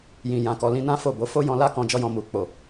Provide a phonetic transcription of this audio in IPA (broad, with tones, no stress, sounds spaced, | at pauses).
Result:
j ĩ˨ j ã˨ k ɔ˨ l ĩ˨˦ n ã˦ f o˦˨ b o˨˦ f o˦ j ɔ̃˧ l a˦ k ɔ̃˧ d͡ʒ ɔ˦ j ɔ̃˧ m u˨ k͡p o˨